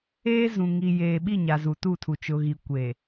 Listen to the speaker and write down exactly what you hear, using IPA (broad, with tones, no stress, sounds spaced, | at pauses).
eː˦ z ũ˨ ŋ i˨ j eː˨ ɓ i˦˨ ɲ a˨ z u˨ t u˦˨ tʰ u˨ t͡ʃ ʊ˨ ɣ i˨ kʷ e˨